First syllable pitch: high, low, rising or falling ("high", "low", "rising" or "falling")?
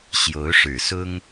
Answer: rising